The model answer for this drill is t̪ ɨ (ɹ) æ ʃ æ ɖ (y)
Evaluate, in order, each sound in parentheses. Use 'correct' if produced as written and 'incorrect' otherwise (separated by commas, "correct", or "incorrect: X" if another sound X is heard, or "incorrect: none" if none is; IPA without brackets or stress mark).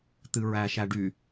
correct, correct